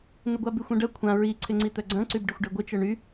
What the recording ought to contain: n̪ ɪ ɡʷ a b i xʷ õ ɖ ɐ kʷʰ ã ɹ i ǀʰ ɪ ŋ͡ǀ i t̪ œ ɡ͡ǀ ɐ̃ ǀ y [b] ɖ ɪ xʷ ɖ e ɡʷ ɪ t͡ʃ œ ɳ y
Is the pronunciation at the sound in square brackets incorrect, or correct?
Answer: correct